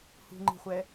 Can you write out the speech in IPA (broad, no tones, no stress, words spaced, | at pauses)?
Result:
hṳŋ͡ǃi̤χʷɛ